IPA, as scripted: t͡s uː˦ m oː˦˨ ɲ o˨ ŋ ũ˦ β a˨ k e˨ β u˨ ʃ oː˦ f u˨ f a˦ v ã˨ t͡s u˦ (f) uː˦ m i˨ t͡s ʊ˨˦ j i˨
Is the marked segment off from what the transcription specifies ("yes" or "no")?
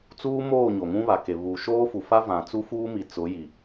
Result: no